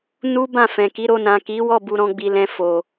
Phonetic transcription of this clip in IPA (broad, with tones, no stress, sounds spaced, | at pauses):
n u˦ b ã˦˨ f ɛ̃˨ k i˨˦ ɾ o˧ n ã˨ k i˨˦ w ɔ˦˨ b u˧ ɾ ɔ̃˧ ɡ͡b i˨ l ɛ̃˧ f o˨